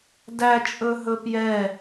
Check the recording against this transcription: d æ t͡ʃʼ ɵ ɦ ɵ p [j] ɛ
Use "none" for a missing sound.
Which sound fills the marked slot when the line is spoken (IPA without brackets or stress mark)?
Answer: j